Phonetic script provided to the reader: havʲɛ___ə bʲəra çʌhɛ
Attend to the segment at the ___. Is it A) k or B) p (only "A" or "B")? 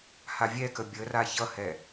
A